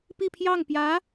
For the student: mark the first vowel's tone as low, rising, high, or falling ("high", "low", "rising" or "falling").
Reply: falling